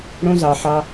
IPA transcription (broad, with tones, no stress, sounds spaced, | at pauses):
ɽ õ˦ z ɑ˨ ħ ɑ˧